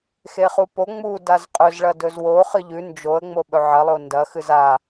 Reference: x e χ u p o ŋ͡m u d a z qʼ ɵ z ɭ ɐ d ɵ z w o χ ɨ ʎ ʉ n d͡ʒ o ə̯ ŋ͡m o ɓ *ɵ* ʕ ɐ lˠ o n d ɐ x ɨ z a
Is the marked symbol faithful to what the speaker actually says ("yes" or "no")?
yes